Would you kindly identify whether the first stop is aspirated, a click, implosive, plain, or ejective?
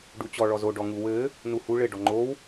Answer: plain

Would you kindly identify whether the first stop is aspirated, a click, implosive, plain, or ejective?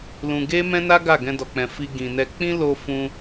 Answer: plain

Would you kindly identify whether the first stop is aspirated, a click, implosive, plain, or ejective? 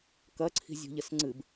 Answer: plain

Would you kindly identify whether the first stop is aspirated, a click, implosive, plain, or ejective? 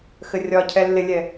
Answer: aspirated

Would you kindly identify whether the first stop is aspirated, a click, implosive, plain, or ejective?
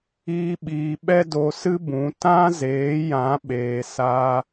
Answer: implosive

